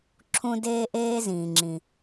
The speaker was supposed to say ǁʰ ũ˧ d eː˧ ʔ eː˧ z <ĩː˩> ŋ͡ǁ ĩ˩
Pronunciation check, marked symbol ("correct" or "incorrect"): correct